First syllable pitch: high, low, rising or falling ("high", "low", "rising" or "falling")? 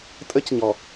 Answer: high